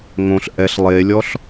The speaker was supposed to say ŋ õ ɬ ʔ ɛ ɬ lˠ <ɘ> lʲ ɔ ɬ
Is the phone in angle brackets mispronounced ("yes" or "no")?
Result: yes